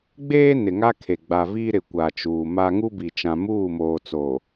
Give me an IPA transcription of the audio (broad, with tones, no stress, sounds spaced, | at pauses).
ɡ͡b eː˦ n ɪ˨ ŋ a˦ kʰ e˨ ɡ͡b a˨ v iː˦ ɾ ɪ˨ kʷ a˨ t͡ʃ uː˨ m a˦ ŋ u˦ b i˨ t͡ʃ ã˦ m uː˦˨ m oː˨ t͡s o˨